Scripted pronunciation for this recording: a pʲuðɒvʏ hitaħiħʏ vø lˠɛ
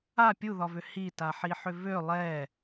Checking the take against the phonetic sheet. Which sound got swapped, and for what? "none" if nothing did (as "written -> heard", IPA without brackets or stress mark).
none